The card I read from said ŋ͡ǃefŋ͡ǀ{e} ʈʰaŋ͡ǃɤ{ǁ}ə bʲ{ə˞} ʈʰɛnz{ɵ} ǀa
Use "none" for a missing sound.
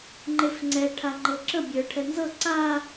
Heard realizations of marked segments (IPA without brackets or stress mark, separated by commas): ɛ, ǁ, ə˞, ɤ